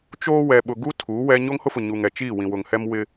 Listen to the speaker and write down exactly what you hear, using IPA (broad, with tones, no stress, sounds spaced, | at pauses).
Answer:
t͡ʃ oː˦ w ɛ˨ ɓ ʊ˨ ɡ u˦ tʰ u˨˦ w ɛ˦ ɲ o˦ ŋ h ʊ˦ f ʊ˨ ɲ u˨ ŋ ɛ˨ t͡ʃ iː˦˨ w ĩ˨ w ʊ˨ ŋ h ɛ˦ m w ɪ˦